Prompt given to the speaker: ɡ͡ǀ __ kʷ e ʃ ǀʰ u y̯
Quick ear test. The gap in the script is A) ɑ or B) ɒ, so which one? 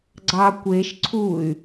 A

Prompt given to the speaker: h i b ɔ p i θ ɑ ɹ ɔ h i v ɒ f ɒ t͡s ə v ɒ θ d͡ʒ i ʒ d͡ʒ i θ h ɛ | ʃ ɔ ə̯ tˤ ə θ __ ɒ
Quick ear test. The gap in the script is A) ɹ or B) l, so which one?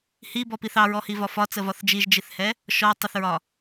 A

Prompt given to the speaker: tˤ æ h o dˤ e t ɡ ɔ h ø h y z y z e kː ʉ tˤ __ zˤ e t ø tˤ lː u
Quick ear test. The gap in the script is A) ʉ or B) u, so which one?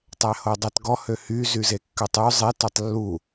A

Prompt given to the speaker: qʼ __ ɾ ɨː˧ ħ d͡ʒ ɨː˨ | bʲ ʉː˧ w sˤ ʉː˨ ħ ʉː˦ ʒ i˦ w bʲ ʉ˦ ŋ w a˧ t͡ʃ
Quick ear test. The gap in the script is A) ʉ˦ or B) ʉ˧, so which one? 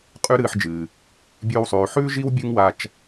A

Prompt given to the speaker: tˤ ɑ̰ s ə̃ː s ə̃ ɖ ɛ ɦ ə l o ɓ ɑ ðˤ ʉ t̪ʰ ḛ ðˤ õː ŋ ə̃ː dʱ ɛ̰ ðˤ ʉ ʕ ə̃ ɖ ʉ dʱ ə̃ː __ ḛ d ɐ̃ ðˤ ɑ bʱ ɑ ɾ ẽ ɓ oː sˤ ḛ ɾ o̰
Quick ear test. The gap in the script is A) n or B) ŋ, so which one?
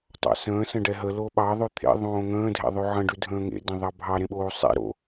B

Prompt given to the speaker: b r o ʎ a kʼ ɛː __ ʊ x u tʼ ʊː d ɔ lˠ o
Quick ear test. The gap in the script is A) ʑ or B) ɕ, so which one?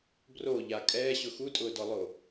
B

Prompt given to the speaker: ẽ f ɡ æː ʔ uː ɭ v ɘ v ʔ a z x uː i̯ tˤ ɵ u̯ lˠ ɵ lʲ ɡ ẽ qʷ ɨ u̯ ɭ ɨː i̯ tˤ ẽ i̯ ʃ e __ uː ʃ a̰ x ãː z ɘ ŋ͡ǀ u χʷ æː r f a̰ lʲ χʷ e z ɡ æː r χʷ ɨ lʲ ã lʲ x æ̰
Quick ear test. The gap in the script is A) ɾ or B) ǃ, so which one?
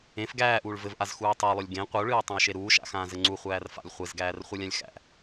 A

